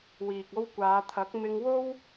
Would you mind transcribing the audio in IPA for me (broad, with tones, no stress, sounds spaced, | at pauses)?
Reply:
w iː˨ k̚ o˧ w kʷ aː˨˧ t̪ʰ ɐ˨˥ k̚ m ɪ˧ ŋ w o˥ w